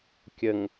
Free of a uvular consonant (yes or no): yes